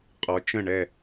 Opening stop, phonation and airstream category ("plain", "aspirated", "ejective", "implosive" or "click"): ejective